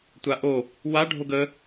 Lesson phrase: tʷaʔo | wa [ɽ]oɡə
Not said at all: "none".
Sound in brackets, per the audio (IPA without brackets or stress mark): ɖʱ